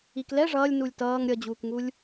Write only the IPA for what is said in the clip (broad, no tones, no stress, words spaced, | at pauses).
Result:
iklɛ ʐʌːlʲ nulʲtʌːŋ ɾʲʌd͡ʑuːkŋulʲ